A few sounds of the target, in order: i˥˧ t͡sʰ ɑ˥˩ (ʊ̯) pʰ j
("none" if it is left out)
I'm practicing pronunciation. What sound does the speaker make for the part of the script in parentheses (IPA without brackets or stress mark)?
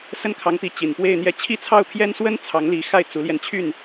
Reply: ʊ̯